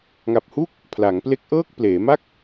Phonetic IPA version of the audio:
ŋ a˨˩ p̚ h u˥˩ k̚ | pʰ l a˩˦ ŋ p l e˦˥ k̚ ʔ ɤː˥˩ k̚ p l eː˩˦ m a˥˩ k̚

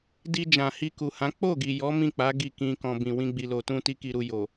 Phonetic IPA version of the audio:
d i˧ d͡ʒ ã˨ h i˧ k u˨ h ã˨˦ k͡p o˦˨ ɡ i˨ j ɔ˨˦ m ĩ˦˨ k͡p a˨˦ ɡ i˦˨ k ĩ˧ k ɔ̃˨ b ĩ˨ w ĩ˧ ɡ͡b i˨ l o˨ t ũ˧ t i˦ k i˧ ɾ u˧ j o˨

